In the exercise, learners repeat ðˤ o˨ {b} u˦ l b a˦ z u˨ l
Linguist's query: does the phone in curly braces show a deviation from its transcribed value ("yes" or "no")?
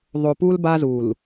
yes